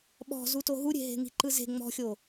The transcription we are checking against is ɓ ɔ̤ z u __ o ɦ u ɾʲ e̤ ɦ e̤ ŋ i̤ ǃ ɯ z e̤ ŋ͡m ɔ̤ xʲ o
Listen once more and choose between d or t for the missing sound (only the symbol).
t